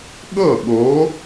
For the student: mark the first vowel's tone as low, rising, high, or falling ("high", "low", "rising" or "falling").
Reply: falling